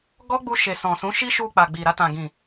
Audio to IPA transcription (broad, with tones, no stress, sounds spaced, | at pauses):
ɡ ɔ˦ ɡ͡b u˧ ʃ e˨ s ɔ̃˨ s ũ˨˦ ʃ i˦ ʃ u˧ k͡p a˨ ɡ͡b i˨ ɾ a˧ t ã˨ ɡ ĩ˨